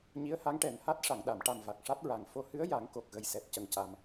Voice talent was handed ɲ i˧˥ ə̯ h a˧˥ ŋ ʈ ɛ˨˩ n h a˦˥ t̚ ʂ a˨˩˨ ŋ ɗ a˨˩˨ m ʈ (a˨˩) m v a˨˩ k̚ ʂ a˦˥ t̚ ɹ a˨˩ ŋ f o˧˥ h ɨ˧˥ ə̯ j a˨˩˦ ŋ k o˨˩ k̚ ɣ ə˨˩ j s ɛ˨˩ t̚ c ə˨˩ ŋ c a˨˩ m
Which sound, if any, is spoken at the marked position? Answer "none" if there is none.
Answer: a˨˩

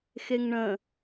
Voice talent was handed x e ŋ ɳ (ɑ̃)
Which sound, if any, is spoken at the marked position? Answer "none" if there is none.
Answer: ə̃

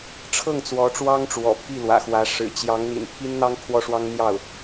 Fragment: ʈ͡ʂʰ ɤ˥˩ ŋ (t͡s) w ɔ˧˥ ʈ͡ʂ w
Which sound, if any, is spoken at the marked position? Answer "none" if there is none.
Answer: t͡s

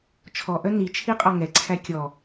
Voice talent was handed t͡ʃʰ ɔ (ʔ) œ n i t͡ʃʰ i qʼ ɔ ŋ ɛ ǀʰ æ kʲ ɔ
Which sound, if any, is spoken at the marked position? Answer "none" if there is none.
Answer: ʔ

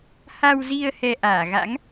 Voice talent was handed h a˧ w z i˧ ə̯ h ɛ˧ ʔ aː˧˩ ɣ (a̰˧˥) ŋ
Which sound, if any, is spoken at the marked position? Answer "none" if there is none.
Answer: a̰˧˥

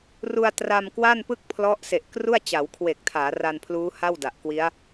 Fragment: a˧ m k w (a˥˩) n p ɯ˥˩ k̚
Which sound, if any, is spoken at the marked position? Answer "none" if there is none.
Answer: a˥˩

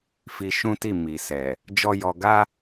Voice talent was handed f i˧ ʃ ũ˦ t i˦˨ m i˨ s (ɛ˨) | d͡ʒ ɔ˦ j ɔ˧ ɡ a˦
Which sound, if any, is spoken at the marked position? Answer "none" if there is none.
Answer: ɛ˨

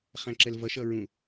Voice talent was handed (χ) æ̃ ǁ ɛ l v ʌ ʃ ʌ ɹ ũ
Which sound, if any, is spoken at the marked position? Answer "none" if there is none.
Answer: χ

